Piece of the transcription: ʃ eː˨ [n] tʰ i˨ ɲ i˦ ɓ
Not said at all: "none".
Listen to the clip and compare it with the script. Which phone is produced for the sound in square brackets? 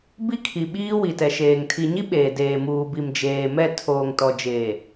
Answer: ŋ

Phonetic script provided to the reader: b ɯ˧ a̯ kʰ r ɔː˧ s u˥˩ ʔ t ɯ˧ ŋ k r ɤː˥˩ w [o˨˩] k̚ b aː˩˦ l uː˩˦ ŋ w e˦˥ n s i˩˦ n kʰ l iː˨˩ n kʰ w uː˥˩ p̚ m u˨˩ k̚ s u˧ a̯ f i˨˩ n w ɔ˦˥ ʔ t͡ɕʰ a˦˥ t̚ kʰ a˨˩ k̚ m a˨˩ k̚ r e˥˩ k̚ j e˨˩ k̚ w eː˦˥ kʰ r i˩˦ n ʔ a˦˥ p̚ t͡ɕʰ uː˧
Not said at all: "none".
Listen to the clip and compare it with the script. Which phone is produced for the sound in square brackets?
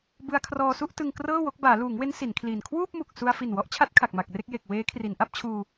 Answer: o˦˥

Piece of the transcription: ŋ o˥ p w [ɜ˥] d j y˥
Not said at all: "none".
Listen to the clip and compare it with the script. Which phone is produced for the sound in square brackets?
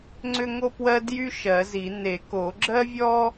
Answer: ɜ˥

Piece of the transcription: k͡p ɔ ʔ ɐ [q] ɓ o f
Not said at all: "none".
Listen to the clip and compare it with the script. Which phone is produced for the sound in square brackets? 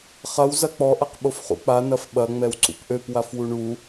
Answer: q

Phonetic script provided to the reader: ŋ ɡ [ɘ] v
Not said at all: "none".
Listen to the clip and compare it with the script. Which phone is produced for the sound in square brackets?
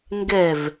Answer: ɛ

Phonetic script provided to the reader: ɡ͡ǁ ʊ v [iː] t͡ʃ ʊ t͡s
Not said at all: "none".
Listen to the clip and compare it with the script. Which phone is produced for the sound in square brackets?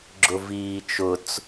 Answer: iː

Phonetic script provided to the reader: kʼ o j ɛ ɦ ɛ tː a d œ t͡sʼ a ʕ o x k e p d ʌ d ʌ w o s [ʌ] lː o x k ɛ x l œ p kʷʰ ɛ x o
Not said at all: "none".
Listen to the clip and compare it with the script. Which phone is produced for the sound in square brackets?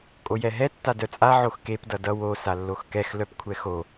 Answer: a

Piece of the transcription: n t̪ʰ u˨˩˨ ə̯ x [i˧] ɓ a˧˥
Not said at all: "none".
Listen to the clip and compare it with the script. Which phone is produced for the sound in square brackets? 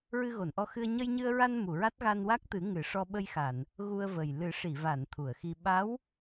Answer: i˧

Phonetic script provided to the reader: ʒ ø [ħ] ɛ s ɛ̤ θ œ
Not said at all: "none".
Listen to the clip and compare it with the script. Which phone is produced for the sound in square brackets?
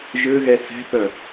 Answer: ɣ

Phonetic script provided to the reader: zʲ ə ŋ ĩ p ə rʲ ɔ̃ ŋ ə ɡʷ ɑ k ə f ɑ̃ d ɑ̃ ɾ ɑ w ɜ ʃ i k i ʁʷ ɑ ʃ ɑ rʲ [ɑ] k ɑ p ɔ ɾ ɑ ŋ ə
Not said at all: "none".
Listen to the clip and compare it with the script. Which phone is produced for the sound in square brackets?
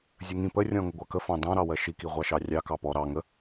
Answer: ɑ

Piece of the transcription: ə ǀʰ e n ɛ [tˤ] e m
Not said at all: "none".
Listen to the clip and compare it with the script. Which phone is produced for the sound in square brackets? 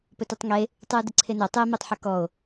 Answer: tˤ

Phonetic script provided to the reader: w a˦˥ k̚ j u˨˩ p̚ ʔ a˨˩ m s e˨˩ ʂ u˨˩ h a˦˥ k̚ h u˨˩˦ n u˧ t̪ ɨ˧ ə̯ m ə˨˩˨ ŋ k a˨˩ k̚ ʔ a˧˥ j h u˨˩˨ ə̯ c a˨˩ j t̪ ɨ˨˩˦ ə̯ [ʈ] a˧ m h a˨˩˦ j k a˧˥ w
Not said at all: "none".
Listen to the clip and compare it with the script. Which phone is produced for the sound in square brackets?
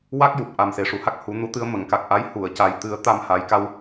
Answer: t̪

